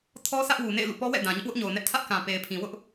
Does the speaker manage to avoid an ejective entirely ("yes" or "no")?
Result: yes